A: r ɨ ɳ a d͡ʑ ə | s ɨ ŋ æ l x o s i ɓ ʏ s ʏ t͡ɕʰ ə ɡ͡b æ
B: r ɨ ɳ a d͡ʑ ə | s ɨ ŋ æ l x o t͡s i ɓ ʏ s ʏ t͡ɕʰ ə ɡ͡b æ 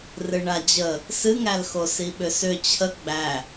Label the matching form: A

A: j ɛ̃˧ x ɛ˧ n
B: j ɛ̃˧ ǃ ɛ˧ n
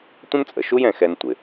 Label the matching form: A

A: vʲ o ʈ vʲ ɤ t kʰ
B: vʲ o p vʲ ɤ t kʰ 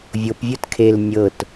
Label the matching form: B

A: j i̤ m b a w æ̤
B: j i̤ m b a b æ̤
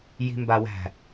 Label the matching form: A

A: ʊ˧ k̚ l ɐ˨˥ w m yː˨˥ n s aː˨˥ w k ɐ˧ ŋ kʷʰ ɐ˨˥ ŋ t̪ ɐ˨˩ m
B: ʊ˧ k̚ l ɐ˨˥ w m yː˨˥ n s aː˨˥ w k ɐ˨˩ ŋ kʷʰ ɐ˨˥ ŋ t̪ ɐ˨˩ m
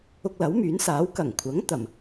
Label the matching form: B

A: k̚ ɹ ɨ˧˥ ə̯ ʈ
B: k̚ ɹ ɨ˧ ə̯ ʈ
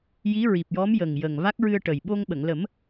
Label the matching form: B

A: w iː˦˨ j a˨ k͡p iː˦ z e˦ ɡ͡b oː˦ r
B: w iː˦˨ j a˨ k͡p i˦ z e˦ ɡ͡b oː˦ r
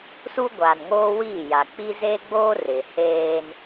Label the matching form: B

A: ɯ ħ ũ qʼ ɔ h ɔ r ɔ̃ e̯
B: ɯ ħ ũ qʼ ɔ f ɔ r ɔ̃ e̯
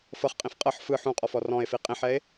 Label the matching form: B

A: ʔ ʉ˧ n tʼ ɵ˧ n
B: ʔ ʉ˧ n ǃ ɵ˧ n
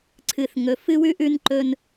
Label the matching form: B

